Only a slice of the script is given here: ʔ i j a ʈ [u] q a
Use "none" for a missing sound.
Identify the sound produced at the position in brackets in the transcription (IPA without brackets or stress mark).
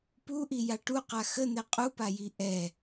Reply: u